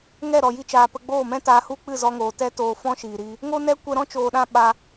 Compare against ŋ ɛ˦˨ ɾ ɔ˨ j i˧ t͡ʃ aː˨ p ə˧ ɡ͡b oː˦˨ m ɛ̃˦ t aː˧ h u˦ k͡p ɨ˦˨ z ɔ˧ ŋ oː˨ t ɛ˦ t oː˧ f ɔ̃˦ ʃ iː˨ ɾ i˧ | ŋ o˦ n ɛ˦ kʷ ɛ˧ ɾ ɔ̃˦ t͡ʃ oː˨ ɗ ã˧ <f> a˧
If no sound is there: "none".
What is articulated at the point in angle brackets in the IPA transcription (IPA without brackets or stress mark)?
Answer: ɓ